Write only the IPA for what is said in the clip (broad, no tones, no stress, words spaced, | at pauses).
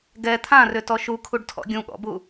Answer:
ɡɛ t̪ʰãrʏtɔ ʃukʰuɖtʰɔ̰ ɡʲũɠɔ̰bu